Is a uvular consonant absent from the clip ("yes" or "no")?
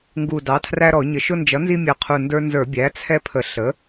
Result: no